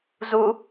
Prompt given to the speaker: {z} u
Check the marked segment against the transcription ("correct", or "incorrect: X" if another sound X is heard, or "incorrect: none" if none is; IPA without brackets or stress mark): correct